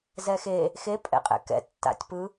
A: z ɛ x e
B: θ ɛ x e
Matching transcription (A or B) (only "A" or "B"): A